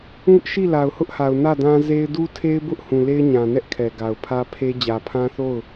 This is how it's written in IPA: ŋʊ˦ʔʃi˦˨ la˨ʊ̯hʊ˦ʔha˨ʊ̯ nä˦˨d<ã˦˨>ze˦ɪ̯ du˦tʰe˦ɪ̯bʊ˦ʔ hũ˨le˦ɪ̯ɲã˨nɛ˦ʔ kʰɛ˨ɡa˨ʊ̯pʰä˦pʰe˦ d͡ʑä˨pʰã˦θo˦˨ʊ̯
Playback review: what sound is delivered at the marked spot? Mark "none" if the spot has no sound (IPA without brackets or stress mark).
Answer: ã˦